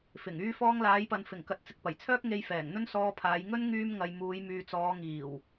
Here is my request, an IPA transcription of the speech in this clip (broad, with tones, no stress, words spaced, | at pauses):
fɪ˨˩ŋ yː˧fɔː˧ŋlaː˨˧jpɐ˨n fɪ˨˩ŋkɐ˨t̚t͡sɪ˨k̚ pɐ˨˩jt͡sʰœː˥k̚ ŋe˧j fɛː˨˩ŋn̪ɵ˥nsɔː˧pʰaː˨˧j ŋɵ˥n ŋyː˥mŋɐ˧j muː˨˧jmyː˨t͡sɔː˨˧ ŋiː˨˩w